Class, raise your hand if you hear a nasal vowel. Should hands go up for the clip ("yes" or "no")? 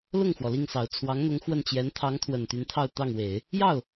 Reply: no